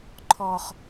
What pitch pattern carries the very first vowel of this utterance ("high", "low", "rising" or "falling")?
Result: high